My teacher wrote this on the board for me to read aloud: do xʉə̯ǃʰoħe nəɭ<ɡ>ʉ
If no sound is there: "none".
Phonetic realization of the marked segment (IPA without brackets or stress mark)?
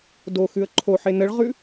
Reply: ʁ